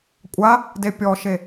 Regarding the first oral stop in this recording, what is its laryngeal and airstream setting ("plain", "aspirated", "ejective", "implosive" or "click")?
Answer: ejective